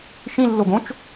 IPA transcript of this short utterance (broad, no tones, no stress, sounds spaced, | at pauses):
ʃ ĩ lː o ɡ õ t͡ʃ